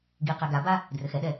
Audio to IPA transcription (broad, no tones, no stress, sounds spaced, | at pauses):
ɡ i q ɛ ɡ a b a | d r ɘ x ɛ ɗ ɛ